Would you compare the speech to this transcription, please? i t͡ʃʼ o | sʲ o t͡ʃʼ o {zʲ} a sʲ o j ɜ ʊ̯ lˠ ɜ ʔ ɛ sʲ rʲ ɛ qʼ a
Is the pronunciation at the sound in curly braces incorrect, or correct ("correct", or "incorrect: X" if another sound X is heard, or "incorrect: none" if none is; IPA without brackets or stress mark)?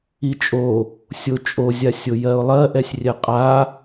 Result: correct